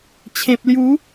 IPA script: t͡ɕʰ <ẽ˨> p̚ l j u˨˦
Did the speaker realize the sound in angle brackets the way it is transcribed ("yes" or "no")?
yes